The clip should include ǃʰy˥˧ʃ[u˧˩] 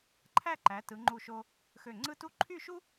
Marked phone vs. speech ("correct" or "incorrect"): incorrect